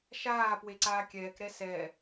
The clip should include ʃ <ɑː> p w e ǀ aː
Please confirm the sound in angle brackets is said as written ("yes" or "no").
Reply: no